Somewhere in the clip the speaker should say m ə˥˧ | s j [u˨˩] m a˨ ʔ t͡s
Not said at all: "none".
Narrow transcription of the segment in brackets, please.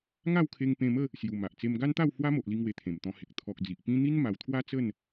u˨˩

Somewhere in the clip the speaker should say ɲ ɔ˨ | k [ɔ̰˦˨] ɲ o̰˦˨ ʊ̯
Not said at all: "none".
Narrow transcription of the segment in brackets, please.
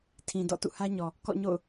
ɔ̰˦˨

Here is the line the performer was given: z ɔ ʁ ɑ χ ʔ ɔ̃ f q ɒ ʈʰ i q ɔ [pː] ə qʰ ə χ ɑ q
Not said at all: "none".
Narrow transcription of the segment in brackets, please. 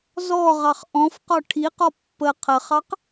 pː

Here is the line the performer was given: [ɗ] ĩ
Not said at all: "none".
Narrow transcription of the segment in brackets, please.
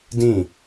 d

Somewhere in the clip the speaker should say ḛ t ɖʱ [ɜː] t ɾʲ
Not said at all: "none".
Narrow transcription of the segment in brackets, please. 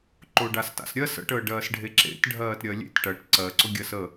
ɜː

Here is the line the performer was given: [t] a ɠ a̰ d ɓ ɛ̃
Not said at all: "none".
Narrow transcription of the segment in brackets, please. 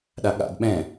ɗ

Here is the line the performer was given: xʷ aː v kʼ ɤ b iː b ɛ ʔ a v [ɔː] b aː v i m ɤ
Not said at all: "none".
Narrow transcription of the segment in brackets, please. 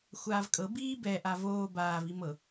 oː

